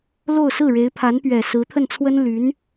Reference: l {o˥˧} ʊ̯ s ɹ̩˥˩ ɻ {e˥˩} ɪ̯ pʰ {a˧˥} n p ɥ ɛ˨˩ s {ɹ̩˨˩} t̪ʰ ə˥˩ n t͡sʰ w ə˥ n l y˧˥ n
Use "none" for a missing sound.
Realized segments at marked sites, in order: o˥˧, e˧˥, a˧˥, ɹ̩˧˥

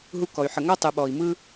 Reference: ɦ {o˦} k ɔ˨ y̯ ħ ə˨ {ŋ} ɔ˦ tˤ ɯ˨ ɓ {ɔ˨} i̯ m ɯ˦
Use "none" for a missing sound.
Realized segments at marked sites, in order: u˦, ŋ, ɔ˨

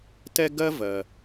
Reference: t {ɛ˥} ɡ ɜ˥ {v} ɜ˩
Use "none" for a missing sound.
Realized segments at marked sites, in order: ɛ˥, v

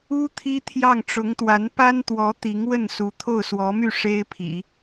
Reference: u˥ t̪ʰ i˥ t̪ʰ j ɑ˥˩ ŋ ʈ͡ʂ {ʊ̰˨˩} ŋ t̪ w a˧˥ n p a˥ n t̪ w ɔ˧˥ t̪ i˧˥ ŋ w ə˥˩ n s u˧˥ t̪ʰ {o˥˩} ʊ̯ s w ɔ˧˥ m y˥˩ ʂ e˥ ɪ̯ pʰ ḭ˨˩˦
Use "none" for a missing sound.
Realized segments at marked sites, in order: ʊ˧˥, o˥˩

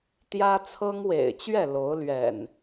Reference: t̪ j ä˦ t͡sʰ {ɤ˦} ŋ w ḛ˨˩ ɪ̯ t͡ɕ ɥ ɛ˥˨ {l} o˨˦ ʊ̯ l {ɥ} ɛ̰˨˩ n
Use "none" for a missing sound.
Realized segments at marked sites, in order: ɤ˦, l, ɥ

